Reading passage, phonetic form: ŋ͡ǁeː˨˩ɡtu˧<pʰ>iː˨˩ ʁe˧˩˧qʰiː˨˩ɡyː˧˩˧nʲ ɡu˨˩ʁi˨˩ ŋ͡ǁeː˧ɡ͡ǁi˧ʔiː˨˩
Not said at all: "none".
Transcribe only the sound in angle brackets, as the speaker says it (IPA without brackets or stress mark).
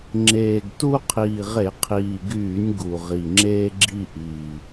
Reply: qʰ